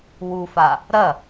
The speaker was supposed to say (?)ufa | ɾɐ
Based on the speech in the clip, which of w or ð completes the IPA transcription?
w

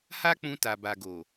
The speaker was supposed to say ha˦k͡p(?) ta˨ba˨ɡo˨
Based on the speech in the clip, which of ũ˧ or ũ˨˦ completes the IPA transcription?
ũ˧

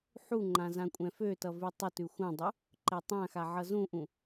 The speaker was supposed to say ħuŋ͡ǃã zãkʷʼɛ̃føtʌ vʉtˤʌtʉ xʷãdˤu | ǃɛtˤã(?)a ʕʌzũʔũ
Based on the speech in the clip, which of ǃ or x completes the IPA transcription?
x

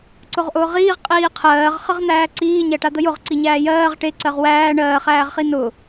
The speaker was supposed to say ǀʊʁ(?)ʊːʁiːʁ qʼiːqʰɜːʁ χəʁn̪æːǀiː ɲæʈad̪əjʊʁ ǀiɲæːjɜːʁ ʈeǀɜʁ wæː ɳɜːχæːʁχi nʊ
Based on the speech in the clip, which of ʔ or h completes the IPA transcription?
ʔ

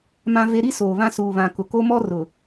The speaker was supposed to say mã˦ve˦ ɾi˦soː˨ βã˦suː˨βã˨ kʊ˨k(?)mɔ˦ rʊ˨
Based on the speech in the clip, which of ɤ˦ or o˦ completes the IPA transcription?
o˦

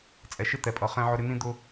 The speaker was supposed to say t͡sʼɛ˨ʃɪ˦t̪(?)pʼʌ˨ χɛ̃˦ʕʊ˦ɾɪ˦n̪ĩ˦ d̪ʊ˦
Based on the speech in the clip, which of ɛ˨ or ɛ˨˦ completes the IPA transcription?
ɛ˨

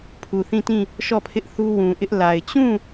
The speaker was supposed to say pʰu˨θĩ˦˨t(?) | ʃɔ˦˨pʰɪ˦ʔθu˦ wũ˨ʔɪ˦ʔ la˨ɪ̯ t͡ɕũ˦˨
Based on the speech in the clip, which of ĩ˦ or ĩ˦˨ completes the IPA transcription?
ĩ˦˨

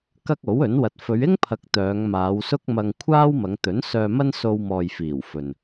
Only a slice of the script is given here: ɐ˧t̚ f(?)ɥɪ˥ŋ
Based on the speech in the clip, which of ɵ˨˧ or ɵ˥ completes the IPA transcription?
ɵ˨˧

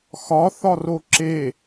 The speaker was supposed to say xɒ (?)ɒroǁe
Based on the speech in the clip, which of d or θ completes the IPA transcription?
θ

